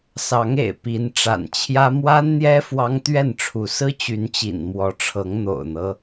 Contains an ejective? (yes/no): no